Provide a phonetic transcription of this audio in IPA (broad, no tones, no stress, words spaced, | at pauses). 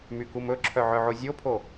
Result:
mykumɵǁʰœ ʕœʕozʲopʰo